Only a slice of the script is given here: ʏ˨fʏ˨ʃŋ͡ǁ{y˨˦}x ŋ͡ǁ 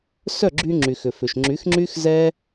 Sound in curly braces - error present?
no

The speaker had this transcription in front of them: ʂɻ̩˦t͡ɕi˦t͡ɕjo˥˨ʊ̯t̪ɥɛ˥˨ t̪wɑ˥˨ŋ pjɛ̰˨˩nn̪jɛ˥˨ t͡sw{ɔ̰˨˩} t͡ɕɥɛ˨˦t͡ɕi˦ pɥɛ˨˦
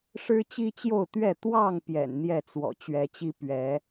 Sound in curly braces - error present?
no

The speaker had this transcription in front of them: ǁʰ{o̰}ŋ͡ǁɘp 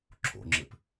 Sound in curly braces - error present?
no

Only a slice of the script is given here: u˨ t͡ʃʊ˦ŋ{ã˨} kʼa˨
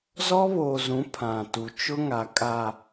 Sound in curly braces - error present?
yes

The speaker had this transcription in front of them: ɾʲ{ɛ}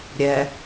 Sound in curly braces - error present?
no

